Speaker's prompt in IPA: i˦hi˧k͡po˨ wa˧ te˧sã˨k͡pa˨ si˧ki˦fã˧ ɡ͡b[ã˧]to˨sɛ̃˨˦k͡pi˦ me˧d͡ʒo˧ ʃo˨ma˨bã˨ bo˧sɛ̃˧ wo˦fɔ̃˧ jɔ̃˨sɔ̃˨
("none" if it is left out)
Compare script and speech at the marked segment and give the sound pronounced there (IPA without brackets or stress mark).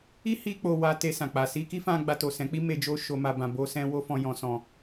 a˧